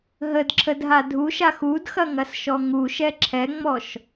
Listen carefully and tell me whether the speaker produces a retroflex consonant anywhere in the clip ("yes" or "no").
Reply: no